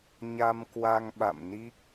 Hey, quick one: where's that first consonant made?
palate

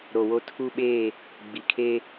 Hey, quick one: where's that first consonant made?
tongue tip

